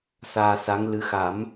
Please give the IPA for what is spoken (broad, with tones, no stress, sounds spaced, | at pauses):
s aː˧ s a˧˥ ŋ l ɨ˧˥ x a˨˩˦ m